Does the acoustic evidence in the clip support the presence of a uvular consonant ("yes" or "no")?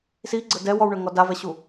no